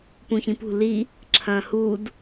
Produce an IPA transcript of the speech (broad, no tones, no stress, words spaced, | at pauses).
pũçĩpṳ li | ǁʰɐ̃ːhud